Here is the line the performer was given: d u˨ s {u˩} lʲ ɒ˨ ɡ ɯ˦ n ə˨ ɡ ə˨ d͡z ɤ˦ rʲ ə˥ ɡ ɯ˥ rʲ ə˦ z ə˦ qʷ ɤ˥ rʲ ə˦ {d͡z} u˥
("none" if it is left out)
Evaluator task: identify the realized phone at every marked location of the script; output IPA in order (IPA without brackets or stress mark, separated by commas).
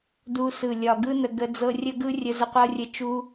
ɯ˩, t͡ʃ